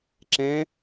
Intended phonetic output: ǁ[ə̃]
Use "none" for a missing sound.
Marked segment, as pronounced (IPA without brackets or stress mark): ɛ̃